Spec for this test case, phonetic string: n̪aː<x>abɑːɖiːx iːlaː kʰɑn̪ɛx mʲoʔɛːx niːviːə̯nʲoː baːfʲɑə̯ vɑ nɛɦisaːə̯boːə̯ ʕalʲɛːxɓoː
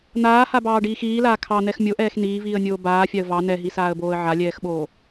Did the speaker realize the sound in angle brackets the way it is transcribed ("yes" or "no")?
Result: no